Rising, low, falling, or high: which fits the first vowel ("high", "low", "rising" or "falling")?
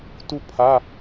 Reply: high